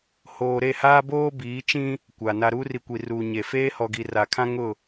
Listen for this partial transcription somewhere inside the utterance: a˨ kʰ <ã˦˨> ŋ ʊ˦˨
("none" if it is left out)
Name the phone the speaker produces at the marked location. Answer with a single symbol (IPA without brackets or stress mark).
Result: ã˦